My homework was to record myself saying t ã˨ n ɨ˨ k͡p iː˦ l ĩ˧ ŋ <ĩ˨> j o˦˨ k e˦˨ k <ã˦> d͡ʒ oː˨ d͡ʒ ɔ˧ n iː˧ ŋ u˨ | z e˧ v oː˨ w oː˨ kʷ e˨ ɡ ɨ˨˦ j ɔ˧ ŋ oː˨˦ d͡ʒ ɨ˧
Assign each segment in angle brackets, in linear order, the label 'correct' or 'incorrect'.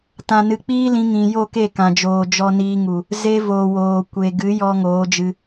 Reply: correct, incorrect

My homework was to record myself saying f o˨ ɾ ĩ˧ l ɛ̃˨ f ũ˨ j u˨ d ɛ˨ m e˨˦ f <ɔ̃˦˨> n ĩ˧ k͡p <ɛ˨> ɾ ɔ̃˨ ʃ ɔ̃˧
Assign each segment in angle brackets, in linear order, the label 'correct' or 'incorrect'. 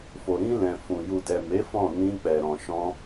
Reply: correct, correct

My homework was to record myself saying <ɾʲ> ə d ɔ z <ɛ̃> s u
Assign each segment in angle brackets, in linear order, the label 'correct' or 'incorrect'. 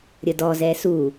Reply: correct, incorrect

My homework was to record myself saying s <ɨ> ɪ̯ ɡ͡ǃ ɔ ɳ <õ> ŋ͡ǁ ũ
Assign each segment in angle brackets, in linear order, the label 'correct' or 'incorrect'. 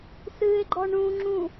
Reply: correct, incorrect

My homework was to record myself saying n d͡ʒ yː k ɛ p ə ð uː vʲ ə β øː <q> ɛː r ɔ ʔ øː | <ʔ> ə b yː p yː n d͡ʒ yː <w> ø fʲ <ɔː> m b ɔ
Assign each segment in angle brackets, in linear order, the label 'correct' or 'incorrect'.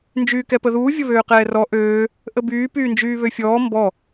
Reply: correct, correct, incorrect, correct

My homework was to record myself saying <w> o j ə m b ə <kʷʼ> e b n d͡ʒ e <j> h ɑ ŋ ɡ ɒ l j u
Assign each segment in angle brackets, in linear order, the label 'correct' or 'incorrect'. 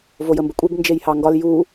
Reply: incorrect, correct, correct

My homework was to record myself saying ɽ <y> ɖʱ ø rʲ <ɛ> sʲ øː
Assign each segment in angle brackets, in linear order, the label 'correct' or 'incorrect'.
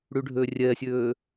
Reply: correct, correct

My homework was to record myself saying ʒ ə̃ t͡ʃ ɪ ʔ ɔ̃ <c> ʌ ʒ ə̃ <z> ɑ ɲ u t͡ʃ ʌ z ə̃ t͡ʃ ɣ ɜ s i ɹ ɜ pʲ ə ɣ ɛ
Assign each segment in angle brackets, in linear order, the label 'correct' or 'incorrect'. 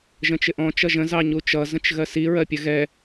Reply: incorrect, correct

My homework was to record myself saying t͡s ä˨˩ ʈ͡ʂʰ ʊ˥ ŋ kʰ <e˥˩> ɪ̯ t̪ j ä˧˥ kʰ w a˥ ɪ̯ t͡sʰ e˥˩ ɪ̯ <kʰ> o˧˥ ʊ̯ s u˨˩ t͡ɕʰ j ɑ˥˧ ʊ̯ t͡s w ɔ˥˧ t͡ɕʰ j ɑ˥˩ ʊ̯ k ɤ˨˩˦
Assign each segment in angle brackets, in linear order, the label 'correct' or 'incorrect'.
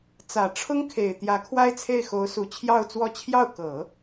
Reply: incorrect, incorrect

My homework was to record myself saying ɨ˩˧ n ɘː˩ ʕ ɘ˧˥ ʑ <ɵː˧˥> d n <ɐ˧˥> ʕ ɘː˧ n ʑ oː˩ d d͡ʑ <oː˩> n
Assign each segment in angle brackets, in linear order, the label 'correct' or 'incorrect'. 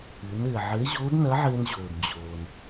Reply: incorrect, correct, correct

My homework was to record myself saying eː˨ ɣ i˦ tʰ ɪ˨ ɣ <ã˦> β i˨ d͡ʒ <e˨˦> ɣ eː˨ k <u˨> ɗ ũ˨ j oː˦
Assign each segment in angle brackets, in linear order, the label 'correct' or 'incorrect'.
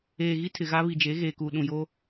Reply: incorrect, correct, correct

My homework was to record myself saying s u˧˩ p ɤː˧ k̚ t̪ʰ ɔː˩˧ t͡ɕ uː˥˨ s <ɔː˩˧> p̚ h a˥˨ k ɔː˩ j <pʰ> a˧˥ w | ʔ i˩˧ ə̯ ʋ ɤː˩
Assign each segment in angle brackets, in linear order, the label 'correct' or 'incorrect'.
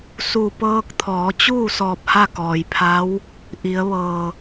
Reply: incorrect, correct

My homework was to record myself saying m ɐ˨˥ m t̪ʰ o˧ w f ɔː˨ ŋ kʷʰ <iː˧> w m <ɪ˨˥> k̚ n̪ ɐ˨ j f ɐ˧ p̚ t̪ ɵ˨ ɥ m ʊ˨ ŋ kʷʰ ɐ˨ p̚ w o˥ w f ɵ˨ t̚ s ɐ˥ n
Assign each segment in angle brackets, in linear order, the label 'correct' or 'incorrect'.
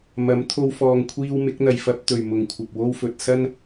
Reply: correct, correct

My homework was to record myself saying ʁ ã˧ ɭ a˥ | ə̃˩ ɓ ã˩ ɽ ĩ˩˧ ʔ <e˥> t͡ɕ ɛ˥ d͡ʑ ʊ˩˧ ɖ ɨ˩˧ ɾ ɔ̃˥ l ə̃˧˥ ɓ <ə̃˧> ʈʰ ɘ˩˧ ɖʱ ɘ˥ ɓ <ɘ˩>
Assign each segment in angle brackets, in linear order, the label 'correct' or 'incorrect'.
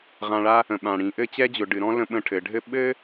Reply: incorrect, correct, incorrect

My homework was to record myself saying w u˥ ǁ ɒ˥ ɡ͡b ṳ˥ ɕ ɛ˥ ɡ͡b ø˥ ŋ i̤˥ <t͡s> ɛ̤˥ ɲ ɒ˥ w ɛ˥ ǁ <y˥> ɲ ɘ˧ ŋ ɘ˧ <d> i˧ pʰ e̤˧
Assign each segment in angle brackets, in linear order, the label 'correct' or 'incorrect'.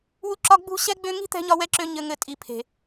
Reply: incorrect, incorrect, incorrect

